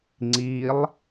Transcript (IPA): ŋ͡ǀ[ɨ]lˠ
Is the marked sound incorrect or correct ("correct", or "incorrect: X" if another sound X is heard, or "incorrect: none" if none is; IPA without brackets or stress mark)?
incorrect: i